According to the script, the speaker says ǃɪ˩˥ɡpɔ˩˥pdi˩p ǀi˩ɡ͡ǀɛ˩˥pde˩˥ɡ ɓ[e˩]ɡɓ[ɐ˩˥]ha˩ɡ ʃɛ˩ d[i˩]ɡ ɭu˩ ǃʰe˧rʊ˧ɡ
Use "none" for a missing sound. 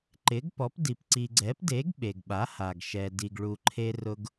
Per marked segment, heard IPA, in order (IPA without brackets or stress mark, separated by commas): e˩, a˩˥, i˩